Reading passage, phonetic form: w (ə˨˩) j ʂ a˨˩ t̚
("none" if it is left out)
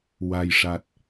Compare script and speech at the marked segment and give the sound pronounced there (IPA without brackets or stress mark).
a˨˩